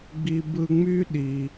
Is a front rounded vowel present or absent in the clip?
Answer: present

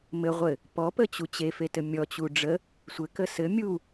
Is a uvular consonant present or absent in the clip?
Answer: present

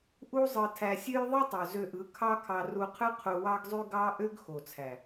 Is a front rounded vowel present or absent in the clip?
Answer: present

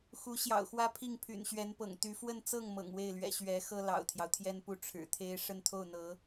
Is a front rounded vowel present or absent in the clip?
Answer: present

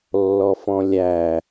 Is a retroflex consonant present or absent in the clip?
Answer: absent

